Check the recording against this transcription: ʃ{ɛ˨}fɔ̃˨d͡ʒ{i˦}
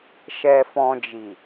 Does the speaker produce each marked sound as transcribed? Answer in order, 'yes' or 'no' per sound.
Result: yes, no

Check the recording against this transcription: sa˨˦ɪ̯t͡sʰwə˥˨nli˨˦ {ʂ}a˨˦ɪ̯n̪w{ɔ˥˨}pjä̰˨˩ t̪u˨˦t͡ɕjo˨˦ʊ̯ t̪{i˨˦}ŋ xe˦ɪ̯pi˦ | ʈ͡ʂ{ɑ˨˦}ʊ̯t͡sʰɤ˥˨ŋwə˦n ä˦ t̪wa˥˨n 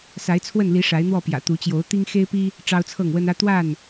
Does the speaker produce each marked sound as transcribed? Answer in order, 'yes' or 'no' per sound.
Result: yes, yes, no, no

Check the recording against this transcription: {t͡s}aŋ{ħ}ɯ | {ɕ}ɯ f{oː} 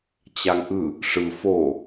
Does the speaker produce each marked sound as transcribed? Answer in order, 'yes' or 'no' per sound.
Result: no, no, no, no

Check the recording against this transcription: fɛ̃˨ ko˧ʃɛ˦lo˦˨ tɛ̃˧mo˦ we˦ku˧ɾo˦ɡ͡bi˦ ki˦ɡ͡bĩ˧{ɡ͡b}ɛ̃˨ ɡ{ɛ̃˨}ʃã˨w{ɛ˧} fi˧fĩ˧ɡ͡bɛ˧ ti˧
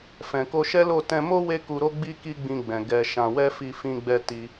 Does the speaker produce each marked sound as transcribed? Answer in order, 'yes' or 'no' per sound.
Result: yes, no, yes

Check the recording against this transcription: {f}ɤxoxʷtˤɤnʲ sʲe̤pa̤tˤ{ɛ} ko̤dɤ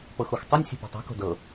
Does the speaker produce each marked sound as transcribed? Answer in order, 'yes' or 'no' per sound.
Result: no, no

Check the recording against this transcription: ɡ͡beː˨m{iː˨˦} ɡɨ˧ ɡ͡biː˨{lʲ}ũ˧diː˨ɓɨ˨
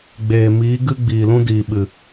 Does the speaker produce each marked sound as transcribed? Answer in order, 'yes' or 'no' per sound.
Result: yes, no

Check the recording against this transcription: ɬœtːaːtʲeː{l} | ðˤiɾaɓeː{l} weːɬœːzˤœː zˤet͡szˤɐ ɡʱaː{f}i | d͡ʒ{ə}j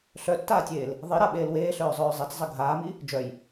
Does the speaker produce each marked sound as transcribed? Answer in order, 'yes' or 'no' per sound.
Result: yes, yes, no, no

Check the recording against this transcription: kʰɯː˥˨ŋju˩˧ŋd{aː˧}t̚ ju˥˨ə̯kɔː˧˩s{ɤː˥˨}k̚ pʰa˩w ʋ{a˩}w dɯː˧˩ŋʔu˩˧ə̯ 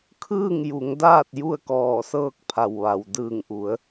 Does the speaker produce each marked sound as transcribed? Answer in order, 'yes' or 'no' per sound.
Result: no, yes, yes

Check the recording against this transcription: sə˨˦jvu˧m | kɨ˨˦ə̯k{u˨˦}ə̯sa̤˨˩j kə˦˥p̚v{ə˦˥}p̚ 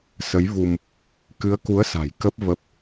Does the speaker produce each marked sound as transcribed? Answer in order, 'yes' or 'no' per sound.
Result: yes, yes

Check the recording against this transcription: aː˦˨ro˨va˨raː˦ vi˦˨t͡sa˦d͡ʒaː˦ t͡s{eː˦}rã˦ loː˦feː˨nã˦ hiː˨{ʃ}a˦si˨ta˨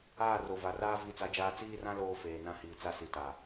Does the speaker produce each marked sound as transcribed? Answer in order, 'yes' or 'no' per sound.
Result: no, no

